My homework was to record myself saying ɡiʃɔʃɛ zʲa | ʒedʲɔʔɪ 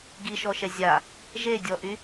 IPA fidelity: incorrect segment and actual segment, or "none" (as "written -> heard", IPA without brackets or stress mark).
ɪ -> y